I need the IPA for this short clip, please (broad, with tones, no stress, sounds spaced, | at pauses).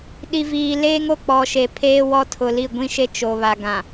ɗ i˨ v iː˨ l eː˦ ŋ o˨ k͡p ɔ˨ ʃ e˨ pʰ eː˦ w ɔ˦ tʰ ʊ˨ l i˦˨ ɡʷ ĩ˦ ʃ e˦ t͡ʃ o˨ β a˨ ɡ ã˨